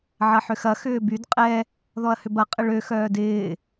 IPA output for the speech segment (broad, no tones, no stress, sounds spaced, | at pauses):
ʕ ɐ ħ ʏ x ɐ x ʏː b y d qʼ ɛ | ð ɔ ɐ̯ h ʏ b ɐ qʼ ɪ ɭ ø x œː d ɪː